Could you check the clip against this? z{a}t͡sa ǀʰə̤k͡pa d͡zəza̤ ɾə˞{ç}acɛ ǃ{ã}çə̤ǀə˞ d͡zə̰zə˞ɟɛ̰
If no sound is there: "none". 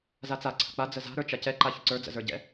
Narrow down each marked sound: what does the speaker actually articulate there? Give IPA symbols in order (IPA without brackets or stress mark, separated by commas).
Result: a, t͡ʃ, a